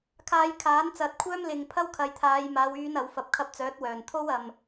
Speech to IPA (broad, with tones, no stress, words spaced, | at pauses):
kʰaː˧jkʰaː˨˥nt͡sɐ˨˥t̚kʷʰœː˥m lɪ˧ŋpʰɐ˥w kʰɐ˨jt̪ʰaː˨˧jmaː˨˧wyː˨˧n ɐ˨˥wfɐ˧p̚ kʰɐ˧p̚ t͡sœː˨˥t̚wœː˨˩nt̪ʰo˥w ɐ˧m